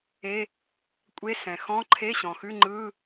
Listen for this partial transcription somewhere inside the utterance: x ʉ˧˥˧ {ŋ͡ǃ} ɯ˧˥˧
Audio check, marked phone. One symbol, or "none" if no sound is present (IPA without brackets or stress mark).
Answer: ŋ͡ǃ